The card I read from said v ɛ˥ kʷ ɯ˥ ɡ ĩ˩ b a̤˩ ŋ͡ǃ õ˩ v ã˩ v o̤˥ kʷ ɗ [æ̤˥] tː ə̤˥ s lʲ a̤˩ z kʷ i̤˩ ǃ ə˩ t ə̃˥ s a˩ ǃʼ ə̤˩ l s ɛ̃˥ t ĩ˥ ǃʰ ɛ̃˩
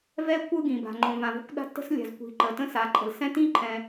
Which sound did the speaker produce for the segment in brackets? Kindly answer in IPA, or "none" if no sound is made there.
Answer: a̤˥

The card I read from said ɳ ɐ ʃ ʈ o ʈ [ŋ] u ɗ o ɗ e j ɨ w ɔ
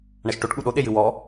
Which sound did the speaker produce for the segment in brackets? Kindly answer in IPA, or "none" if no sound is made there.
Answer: ɠ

